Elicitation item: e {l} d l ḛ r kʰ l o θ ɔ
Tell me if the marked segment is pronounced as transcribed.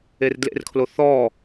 no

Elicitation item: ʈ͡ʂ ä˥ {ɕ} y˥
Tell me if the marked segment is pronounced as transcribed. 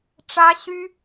yes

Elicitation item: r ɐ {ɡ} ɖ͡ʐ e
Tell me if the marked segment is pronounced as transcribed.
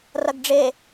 yes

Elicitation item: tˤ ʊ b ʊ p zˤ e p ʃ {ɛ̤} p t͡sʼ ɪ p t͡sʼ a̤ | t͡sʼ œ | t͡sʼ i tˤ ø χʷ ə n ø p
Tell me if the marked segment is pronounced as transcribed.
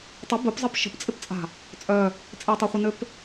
no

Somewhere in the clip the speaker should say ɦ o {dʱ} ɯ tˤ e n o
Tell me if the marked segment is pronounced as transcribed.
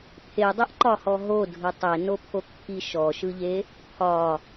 yes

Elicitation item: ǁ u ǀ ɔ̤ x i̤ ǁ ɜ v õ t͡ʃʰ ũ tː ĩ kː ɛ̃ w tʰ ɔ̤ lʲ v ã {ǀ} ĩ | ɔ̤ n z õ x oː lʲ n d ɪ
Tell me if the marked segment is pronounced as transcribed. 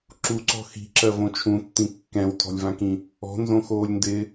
no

